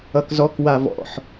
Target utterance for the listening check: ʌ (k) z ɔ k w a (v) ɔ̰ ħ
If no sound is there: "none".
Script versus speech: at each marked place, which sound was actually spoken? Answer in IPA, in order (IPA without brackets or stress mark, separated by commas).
k, v